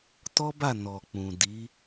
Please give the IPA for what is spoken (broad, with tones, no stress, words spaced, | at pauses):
tɔ˦ba˦˨ nɔ˨k͡pũ˨ di˨˦